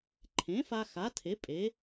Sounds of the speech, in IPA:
ǃʰ ẽ˩˥ f a˧ x a˩˥ tʰ e˩˥ pʼ e˩˥

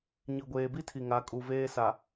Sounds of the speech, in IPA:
ɲ i˨ ɡʷ eː˨ b i˦ tʰ i˨ ŋ a˨˦ kʼ u˨ v eː˦ s a˨

